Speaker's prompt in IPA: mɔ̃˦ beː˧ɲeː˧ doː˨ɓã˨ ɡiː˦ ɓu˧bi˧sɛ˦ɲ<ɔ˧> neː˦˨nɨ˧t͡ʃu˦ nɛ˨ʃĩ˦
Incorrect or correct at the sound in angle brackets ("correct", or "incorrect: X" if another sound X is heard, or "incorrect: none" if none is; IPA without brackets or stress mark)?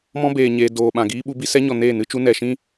incorrect: ɔ˨